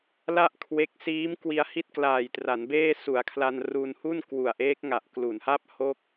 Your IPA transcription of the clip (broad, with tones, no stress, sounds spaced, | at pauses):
l a˥˩ ʔ kʰ w e˦˥ k̚ s iː˦˥ m k w i˧ a̯ h i˥˩ t̚ k l aː˨˩ j t r a˩˦ n b eː˥˩ s u˩˦ a̯ kʰ l a˧ n r u˧ n h u˥˩ n k w u˨˩ a̯ ʔ eː˦˥ k̚ ŋ a˨˩ ʔ k l u˩˦ n h a˥˩ p̚ h o˥˩ k̚